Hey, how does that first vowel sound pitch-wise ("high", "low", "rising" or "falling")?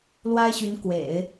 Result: high